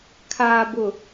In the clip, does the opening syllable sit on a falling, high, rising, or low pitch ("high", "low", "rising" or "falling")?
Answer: low